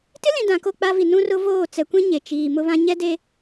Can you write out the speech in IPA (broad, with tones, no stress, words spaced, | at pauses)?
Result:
tɪ˦lĩ˨ dã˨ko˦˨k͡pa˦vi˨ nũ˦rʊ˦voː˦˨ t͡sɛ˨kʷĩ˦ ɲe˨ t͡ʃiː˨ mʊ˦βã˦ ɲɛ˦de˦